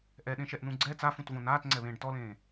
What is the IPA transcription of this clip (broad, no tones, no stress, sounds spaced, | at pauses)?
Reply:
ʔ ɛ ɗ ẽ ʃ ɛ ʔ n ũ ɡ͡ǀ ɛ t͡s a f ũ t v õ n aː t ŋ͡ǀ ɛ β ẽː ɖ t ɔ l ẽː